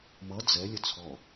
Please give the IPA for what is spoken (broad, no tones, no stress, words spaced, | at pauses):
mʌ d͡zɛ lʲət͡sʰɔ